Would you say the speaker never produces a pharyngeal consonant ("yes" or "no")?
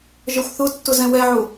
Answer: no